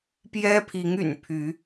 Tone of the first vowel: high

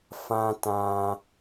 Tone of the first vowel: high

